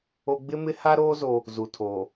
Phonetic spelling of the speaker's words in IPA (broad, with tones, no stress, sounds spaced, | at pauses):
o˦ ɡ͡b ɪ˦ m ɪ˦ h a˦ ɾ oː˦ z o˦ | z u˨ tʰ oː˨